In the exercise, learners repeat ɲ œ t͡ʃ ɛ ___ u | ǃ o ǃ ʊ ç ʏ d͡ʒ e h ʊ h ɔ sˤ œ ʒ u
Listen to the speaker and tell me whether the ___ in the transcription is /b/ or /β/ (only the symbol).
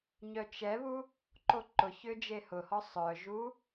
β